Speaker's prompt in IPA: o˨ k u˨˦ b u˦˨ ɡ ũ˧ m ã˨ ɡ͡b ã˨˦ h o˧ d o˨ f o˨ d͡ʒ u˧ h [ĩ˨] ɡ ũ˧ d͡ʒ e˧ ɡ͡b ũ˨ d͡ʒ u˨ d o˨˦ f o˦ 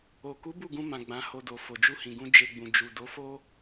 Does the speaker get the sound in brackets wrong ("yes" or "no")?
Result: no